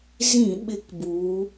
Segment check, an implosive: present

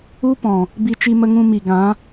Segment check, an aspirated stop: absent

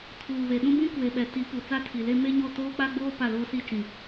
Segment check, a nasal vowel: present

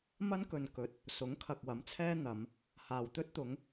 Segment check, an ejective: absent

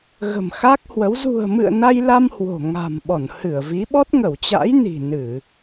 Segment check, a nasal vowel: absent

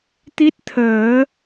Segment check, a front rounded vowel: absent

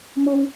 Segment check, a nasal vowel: absent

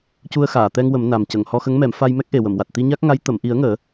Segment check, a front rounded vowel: absent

